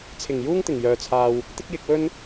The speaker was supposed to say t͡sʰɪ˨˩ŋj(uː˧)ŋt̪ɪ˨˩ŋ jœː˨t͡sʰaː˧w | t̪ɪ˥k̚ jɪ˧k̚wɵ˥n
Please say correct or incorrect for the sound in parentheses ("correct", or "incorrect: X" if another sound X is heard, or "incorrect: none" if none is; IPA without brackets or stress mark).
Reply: incorrect: uː˥